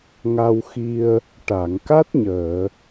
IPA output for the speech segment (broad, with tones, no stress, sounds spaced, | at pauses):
ŋ a˧ w x i˧ ə̯ | ʈ a˨˩˨ ŋ k a˦˥ t̚ ɲ əː˨˩˨